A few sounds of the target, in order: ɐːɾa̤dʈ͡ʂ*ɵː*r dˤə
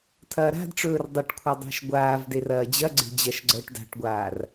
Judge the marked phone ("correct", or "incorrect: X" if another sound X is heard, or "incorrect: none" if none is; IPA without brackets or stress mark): correct